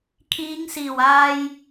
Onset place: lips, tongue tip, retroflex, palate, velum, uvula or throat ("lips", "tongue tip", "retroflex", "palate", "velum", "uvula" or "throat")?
velum